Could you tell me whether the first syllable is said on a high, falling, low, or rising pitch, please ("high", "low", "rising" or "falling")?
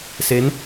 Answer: rising